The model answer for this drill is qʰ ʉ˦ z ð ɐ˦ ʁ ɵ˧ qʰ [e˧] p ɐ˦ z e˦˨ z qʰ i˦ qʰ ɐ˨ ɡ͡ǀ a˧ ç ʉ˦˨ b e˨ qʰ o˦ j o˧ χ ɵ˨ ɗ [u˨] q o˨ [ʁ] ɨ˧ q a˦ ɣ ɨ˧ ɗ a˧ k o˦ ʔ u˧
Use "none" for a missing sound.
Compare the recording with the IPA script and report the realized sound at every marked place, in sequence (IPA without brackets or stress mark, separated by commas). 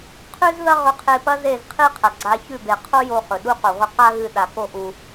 e˧, u˦, ʁʷ